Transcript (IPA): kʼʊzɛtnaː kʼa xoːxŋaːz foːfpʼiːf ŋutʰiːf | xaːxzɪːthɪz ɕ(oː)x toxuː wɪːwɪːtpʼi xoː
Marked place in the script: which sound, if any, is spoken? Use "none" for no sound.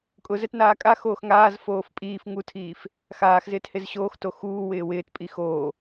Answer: oː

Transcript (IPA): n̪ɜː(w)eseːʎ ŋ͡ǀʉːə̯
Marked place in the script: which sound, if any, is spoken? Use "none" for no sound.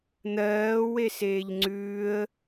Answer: w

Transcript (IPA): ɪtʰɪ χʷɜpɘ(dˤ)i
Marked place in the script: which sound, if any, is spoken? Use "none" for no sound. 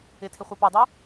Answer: dˤ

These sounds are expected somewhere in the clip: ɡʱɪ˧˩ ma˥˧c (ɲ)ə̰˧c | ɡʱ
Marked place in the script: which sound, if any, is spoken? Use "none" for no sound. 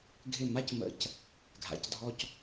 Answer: m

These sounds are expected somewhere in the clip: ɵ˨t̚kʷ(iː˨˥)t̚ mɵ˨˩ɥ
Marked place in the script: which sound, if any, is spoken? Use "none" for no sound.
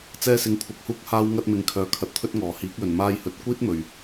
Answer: iː˥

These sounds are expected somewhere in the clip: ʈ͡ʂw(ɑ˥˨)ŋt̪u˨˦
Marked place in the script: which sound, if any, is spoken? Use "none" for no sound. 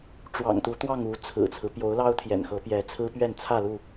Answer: ɑ̰˨˩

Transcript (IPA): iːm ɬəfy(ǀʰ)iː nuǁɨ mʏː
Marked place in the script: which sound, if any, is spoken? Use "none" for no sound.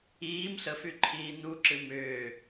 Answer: ǃʰ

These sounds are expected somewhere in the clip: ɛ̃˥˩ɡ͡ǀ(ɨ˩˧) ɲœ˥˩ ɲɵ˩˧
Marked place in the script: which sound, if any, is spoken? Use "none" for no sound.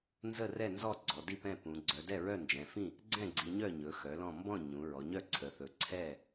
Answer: i˩˧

